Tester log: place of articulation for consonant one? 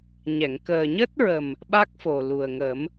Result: palatal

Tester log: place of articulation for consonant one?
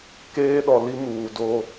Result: velar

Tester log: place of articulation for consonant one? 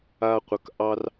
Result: uvular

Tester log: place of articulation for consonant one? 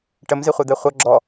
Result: retroflex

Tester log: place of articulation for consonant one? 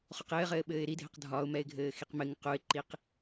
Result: uvular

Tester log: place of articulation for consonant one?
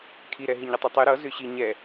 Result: velar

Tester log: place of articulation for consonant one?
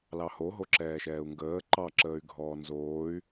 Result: alveolar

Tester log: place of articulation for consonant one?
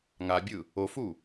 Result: velar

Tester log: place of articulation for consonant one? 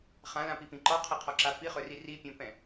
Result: uvular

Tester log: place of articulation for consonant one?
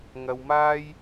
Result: velar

